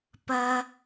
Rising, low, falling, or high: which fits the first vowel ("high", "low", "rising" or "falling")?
high